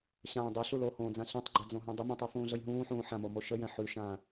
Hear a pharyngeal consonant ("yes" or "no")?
yes